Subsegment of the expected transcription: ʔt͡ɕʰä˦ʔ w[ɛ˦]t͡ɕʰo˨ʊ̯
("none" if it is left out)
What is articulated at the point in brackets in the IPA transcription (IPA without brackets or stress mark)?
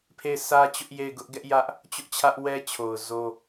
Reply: ɛ˦